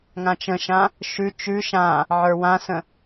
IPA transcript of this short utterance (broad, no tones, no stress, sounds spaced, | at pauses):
ŋ ã t͡ʃ ə̃ ʃ ã | ʃ ʉ t͡ʃ ʉ ʃ ã | ʕ ə˞ w ã s ə̃